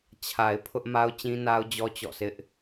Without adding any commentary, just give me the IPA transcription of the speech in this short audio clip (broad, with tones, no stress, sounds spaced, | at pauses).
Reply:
t͡ɕʰ a˨ ɪ̯ pʰ ʊ˦ ʔ m a˦ ʊ̯ t͡ɕ ĩ˦ n a˦ ʊ̯ d͡ʑ ɔ˦ t͡ɕ ɔ̰˦˨ s ɪ˦ ʔ